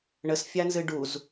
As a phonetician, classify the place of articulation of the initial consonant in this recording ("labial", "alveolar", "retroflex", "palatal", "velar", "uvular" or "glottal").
retroflex